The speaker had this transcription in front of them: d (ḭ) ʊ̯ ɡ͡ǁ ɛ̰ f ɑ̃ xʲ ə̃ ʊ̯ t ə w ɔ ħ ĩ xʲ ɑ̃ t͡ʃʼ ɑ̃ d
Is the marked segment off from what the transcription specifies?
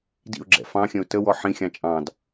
no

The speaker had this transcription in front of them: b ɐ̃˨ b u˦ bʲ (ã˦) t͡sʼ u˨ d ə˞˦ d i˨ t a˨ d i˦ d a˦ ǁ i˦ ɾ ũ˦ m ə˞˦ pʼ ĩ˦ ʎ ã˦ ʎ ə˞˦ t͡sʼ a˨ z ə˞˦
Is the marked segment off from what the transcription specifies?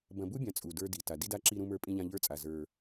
yes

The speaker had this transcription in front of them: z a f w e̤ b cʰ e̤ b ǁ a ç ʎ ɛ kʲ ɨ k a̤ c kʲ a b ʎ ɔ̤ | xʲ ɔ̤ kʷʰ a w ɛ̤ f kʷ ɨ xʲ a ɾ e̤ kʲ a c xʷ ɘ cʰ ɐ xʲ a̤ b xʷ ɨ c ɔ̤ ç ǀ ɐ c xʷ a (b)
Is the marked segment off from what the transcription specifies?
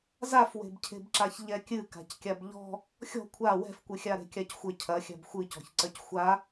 yes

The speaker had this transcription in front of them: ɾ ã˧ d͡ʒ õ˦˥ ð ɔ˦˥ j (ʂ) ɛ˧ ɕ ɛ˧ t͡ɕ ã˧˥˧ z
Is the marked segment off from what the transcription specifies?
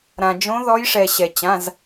no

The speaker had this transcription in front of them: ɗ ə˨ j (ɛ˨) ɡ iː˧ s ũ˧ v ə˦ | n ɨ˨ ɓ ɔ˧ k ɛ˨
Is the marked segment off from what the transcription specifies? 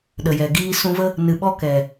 no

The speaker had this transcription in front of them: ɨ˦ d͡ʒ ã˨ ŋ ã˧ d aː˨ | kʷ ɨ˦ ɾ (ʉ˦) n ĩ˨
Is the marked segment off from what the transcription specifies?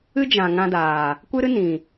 yes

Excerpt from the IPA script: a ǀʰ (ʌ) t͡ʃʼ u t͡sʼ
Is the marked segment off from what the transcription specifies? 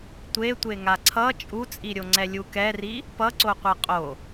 no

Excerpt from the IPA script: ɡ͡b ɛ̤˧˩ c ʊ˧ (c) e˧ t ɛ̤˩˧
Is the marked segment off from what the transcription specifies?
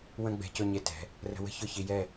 yes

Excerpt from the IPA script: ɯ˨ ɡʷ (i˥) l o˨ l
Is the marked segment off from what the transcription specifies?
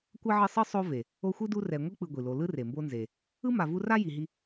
yes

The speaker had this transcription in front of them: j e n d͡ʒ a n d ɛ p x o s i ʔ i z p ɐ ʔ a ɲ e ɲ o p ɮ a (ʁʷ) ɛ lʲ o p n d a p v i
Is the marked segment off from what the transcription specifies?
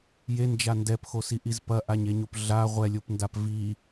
no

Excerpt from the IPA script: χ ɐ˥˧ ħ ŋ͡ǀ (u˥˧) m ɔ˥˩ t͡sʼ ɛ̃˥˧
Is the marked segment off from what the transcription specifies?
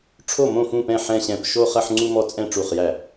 no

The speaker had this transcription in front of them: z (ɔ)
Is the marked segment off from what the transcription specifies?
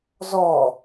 no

